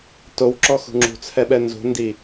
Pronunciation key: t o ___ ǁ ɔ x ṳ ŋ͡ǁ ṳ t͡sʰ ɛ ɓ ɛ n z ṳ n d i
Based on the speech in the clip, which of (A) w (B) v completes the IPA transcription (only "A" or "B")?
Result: A